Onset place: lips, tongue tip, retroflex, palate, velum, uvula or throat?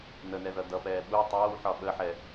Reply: tongue tip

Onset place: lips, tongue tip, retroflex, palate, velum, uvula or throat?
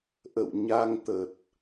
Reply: throat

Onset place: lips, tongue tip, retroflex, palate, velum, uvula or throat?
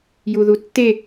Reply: palate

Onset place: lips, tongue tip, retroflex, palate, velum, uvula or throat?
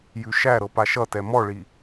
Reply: palate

